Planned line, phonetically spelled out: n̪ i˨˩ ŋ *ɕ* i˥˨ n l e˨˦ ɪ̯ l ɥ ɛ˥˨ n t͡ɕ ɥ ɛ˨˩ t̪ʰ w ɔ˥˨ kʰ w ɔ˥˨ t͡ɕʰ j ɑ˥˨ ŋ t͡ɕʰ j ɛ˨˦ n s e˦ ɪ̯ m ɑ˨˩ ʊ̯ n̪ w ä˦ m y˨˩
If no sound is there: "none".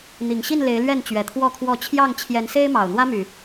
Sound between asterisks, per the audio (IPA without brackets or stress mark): ɕ